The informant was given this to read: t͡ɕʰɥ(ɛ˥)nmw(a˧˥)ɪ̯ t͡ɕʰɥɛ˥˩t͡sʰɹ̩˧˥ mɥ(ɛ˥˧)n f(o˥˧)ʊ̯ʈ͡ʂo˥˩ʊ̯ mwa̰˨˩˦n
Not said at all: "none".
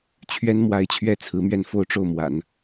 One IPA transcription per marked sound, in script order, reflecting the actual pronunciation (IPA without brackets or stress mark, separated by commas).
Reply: ɛ˥, a˧˥, ɛ˥˧, o˥˧